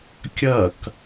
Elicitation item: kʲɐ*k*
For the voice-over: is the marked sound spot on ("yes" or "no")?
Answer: yes